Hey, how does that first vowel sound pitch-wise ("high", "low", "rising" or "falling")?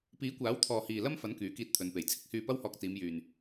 rising